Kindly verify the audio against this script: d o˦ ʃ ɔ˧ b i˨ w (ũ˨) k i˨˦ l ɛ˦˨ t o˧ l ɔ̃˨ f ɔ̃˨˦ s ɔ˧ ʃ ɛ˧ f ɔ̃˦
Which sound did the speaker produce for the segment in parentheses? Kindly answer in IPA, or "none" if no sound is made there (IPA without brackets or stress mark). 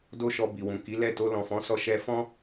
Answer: ũ˨